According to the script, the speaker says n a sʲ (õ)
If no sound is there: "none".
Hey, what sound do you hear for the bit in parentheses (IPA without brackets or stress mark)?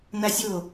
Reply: o